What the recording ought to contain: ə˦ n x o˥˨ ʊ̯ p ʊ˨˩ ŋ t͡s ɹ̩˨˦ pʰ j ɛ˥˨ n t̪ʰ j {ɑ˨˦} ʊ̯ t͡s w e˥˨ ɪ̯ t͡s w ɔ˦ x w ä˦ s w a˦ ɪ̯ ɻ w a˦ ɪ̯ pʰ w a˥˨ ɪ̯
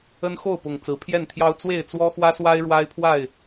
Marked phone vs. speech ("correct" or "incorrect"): incorrect